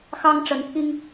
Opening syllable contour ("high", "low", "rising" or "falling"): high